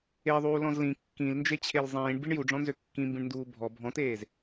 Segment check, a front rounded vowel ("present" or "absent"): present